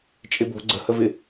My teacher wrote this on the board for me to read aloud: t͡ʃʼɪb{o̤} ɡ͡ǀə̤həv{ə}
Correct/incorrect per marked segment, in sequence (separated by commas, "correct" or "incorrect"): correct, incorrect